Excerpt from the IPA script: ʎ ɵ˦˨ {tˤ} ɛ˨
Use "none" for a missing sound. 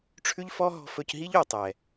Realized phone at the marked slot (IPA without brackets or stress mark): tˤ